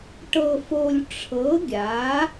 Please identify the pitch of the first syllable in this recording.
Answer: low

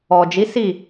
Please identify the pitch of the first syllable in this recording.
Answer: low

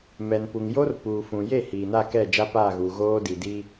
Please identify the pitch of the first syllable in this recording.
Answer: low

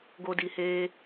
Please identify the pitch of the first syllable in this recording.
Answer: high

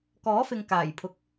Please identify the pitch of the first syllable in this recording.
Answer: rising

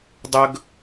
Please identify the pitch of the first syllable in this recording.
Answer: high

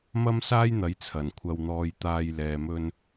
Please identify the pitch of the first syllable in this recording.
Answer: high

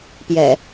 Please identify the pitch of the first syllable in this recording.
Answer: low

